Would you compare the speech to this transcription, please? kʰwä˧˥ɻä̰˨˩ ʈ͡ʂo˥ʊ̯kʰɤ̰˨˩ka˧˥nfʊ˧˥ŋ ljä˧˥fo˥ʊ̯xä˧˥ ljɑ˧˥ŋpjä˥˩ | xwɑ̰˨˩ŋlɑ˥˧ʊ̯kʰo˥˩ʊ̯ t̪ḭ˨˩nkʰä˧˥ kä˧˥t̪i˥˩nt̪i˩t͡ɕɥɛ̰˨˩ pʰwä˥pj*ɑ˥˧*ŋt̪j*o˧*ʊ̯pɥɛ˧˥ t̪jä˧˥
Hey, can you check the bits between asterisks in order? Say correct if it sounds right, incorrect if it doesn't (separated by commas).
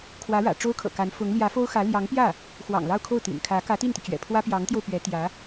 incorrect, correct